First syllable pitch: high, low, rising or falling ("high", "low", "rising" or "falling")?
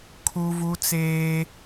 high